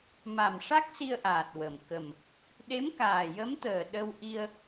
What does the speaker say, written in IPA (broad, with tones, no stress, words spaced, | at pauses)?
ma˨˩mʂa˦˥k̚ si˧ə̯ʔaː˨˩t̚ wə˨˩m kə˨˩m | ɗe˧˥mkaː˨˩jə˧˥mt̪əː˨˩ ɗə˧wʔi˧ə̯